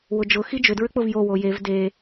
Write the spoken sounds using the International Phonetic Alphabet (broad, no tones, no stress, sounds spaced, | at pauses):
w ʊ d͡ʒ ʊ x i d͡ʒ ʏ d ɹ ʏ k͡p ʊ v j o w o j e v d e